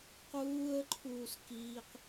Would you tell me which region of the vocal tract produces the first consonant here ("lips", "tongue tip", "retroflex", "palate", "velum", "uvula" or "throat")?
uvula